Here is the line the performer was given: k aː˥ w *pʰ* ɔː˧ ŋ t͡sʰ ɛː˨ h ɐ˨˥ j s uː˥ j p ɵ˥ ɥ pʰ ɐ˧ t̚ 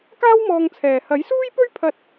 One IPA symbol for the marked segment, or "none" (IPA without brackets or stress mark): m